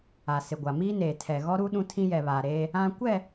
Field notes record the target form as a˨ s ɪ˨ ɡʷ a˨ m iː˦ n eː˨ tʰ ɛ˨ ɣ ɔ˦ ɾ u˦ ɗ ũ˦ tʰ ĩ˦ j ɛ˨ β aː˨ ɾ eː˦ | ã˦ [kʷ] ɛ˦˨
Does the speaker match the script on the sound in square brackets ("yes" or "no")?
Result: yes